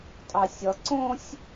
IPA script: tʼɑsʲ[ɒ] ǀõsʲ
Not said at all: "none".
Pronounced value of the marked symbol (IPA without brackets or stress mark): ʌ